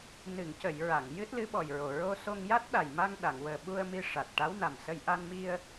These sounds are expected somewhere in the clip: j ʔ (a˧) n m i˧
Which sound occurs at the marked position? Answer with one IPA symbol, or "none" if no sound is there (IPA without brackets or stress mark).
a˧